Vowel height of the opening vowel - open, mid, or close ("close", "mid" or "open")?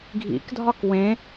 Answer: close